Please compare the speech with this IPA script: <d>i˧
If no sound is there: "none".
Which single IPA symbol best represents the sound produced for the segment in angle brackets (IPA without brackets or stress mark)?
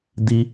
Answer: d